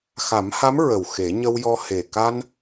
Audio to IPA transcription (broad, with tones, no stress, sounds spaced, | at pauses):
x a˨˩˦ m h a˧˥ m ɹ ə˨˩ w x e˨˩˦ ɲ ə˧ w j ɔ˧ h e˨˩ k a˧ n